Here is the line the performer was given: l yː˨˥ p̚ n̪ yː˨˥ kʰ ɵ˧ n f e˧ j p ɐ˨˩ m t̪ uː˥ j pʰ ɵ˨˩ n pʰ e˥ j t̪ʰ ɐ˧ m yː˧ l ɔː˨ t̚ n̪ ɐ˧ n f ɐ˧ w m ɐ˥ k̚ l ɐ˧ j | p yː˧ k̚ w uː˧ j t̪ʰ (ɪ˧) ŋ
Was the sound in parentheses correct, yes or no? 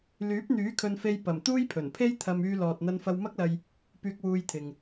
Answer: no